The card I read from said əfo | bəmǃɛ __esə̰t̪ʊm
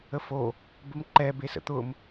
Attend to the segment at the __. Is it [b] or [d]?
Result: b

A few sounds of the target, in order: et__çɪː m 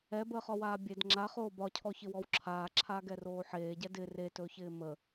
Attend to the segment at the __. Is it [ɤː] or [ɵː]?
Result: ɵː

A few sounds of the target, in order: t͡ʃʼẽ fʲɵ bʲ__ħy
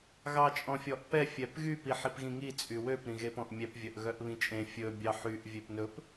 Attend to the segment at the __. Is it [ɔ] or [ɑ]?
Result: ɑ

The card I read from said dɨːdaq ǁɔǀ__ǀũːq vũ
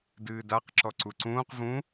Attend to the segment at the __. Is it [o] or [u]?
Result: u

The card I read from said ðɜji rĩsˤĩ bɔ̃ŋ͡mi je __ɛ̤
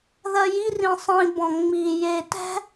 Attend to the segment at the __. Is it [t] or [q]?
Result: t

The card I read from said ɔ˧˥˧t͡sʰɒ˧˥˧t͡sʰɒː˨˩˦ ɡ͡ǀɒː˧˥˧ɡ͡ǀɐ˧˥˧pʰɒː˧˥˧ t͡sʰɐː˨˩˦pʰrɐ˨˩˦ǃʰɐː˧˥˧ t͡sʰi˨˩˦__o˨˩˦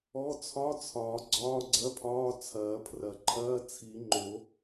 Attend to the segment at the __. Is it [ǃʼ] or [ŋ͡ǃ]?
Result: ŋ͡ǃ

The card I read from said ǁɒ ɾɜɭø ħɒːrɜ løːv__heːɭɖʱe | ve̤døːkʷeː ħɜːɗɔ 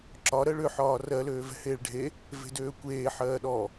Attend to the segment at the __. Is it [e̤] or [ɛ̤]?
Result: ɛ̤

